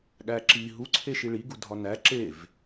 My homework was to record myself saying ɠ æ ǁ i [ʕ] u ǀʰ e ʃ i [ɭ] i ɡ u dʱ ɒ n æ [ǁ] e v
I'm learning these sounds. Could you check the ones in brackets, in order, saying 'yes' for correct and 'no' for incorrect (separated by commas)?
no, yes, yes